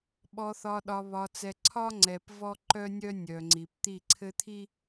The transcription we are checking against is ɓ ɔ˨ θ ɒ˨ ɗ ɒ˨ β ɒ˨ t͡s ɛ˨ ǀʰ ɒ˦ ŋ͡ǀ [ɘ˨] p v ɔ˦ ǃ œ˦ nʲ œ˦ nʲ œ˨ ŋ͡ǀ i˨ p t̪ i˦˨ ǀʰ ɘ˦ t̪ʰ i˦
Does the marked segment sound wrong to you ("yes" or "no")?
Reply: yes